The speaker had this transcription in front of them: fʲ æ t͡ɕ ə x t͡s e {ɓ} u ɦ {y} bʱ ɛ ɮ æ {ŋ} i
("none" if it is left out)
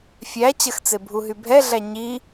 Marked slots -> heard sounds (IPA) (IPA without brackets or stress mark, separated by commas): bʱ, y, ɲ